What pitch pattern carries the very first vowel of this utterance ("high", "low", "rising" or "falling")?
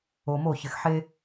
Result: low